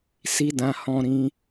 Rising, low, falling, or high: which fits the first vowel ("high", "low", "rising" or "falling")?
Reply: high